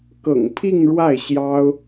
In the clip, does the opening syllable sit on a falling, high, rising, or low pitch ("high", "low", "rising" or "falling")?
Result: low